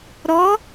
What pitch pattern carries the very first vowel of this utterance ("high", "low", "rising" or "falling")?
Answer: rising